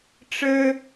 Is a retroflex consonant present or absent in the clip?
present